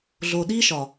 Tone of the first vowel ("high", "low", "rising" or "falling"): low